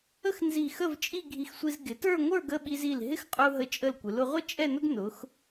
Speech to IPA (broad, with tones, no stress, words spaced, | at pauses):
ə˥xnzi˧˩xə˥˧v t͡ʃʼi˥˧ɡʱi˧xsʷi˧z ɡɪ˩˧tə˞˥˧ŋʷə˞˥˧ɡə˥˧ ɓi˧zi˧˩l ɦɪ˥˧xqʼu˧ɦə˧˩ t͡ʃʼə˧˩lkʷɪ˩˧lʊ˩˧ʁʷə˥ t͡ʃʼɛ˥˧nʊ˥ɡ nʊ˩˧x